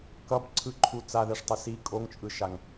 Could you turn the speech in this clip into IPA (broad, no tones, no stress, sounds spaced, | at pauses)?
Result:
k ʌ b ǀʰ ɯ ǃʰ u t͡s a ð ɛ ʂ tˤ i s i kʼ o ŋ t͡ʃʼ ɯ ʃ a ŋ